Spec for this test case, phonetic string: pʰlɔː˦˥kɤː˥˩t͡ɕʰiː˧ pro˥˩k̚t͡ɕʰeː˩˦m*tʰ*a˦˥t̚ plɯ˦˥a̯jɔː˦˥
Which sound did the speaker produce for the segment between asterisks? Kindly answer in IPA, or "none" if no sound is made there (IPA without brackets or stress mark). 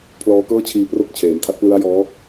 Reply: tʰ